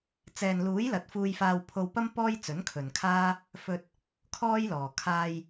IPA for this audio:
t͡s ɛː˨ n l uː˨˥ j l ɐ˨ t̚ f uː˧ j f aː˧ w pʰ o˧ w p ɐ˥ m p ɔː˥ j t͡s ɵ˨˥ n kʰ ɵ˨ n kʰ aː˥ | f ɵ˧ t̚ | kʰ ɔː˥ j l ɔː˨ kʰ aː˧ j

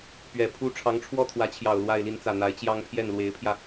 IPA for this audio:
p ɥ ɛ˨˩ pʰ u˥ ʈ͡ʂʰ ɑ˧˥ ŋ ʈ͡ʂʰ w ɔ˥˩ t̪ʰ w ä˧˥ t͡ɕʰ j ɑ˨˩ ʊ̯ l w a˥˧ ɪ̯ l i˥˧ n t͡s ä˥˩ n̪ a˧˥ ɪ̯ t͡ɕ j ɑ˥ ŋ pʰ j ɛ˥˩ n l w e˧˥ ɪ̯ pʰ j ä˧

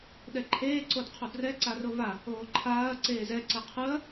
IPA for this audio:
ɗ ɛ ǃʰ eː ǀ o d qʰ o d r ɛ ǀ a r o v a | oː ǃʰ aː ɐ̯ ǀ eː z ɛ ǀ ɛ qʰ ɯ ɐ̯

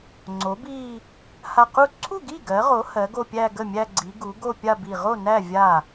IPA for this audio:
ŋ͡ǀ o˩˥ b i˥˧ | h a˧˩ q u˥˩ ǀʰ u˥˩ ɡ i˥˩ ɡ ɜ˩˥ ʁ o˩˥ h ɜ˩˥ ɡ o˥˧ pʲ æ˥˧ ɡ ə˥˩ mʲ æ˥˧ ɡ͡ǀ i˩˥ ɡ u˩˥ ɡ o˥˧ pʲ a˥˧ b i˧˩ ʁ o˥˩ n æ˥˩ vʲ a˥˩

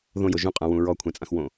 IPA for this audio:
ð õ j o ʒ ũ qʼ ã w ũ ɹ ɔ kʷʰ ɛ̃ t͡sʼ ã x w õ

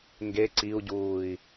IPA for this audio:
ŋ ɡ e ǀ i u̯ ɟ uː i̯

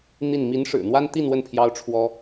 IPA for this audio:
n̪ i˥˩ n m i˧˥ n ʂ ɻ̩˨˩ n̪ w a˥ n t̪ i˥˧ n w ə˥˩ n pʰ j ɑ˥ ʊ̯ ʈ͡ʂʰ w ɔ˥

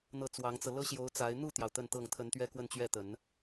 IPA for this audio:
n̪ ɤ˥˩ t͡s w ɑ˧˥ ŋ t͡s ɤ˧ l ɤ˥ ɕ j o˧˥ ʊ̯ t͡s a˧˥ ɪ̯ n̪ u˥˩ t̪ j ɑ˩ ʊ̯ t̪ ə˥˧ n t̪ ɤ˥˩ ŋ t̪ʰ ə˧˥ n t̪ ɥ ɛ˥ k w ə˥˧ n t͡ɕ ɥ ɛ˥˩ t̪ ə˨˩˦ n

